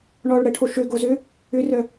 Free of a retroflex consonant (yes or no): no